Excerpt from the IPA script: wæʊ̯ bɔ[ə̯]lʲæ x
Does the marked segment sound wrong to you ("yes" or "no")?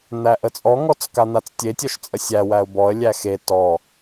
no